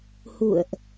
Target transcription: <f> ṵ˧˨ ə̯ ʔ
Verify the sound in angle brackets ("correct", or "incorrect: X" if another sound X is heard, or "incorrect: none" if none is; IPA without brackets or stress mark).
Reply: incorrect: h